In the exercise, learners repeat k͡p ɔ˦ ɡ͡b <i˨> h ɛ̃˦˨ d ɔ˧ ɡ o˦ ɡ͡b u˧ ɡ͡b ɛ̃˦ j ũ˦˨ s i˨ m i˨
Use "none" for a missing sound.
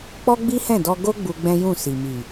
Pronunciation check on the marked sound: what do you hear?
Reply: i˦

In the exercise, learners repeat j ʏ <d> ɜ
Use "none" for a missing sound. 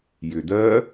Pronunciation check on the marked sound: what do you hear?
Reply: d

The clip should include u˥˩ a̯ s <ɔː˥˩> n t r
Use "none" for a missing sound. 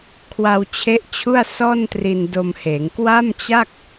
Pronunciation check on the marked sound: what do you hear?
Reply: ɔː˥˩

